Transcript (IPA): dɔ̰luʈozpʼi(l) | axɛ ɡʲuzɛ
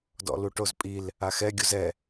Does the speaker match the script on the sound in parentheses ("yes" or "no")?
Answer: yes